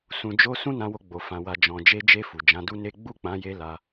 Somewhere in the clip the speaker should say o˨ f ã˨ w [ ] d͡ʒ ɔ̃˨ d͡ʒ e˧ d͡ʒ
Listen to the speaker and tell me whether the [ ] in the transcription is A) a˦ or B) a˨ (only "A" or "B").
B